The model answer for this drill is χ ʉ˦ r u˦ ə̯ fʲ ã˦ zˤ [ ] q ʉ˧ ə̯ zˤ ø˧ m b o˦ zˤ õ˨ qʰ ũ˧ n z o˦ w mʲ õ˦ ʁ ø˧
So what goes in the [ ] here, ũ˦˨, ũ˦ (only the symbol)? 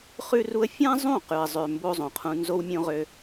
ũ˦˨